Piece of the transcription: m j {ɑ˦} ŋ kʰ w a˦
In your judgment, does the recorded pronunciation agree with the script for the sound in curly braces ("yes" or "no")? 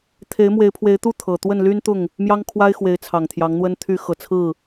yes